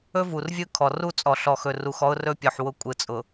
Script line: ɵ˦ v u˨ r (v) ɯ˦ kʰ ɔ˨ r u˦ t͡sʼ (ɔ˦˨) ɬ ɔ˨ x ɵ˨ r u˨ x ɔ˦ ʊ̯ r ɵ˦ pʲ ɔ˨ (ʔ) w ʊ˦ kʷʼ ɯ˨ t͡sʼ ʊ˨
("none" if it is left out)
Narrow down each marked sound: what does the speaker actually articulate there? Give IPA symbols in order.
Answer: vʲ, ɔ˨, ħ

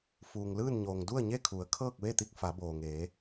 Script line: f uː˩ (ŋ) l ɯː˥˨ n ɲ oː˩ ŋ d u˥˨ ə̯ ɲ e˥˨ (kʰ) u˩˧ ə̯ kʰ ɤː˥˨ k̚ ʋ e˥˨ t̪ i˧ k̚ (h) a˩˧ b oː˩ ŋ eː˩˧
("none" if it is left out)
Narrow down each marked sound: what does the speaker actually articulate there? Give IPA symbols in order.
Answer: ŋ, kʰ, f

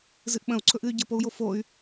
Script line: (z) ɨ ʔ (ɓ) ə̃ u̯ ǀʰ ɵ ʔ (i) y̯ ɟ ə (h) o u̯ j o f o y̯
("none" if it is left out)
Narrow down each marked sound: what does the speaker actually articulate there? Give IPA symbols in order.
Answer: z, ɓ, ɨ, p

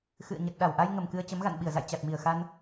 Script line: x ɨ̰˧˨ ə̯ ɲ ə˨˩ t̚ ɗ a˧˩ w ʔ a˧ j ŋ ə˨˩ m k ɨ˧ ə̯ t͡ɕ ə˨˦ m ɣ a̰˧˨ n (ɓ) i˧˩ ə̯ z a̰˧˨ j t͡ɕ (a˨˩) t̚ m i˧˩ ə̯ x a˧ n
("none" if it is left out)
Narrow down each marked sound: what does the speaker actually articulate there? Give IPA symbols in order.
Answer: ɓ, a˨˩

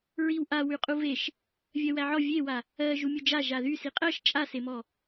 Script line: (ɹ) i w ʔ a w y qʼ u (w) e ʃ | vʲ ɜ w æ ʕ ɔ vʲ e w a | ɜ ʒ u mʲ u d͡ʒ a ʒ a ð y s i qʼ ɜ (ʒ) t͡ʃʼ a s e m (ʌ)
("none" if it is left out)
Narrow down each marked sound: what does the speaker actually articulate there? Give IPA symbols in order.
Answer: ɹ, v, ʃ, ɔ

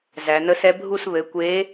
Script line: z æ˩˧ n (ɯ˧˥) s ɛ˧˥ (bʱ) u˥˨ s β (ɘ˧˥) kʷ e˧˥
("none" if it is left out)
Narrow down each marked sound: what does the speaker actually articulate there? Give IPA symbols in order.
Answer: ə˧˥, bʱ, ɘ˩˥

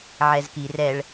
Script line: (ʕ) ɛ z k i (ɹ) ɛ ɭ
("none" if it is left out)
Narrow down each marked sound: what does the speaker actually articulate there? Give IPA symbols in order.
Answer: ʕ, r

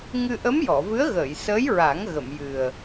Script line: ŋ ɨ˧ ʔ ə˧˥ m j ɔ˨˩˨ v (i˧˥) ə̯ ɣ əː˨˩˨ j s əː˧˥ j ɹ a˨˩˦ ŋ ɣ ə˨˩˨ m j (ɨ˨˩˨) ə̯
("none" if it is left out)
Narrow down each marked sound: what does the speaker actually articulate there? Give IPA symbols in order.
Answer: ɨ˧˥, ɨ˨˩

